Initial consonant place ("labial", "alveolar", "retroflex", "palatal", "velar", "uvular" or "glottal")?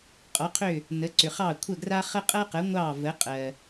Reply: uvular